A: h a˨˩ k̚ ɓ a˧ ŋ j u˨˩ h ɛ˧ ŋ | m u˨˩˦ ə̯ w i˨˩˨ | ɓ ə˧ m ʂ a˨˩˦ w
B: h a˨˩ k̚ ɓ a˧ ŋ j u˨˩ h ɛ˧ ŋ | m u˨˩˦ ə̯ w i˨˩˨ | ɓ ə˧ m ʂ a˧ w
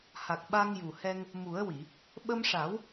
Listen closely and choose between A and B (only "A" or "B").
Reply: A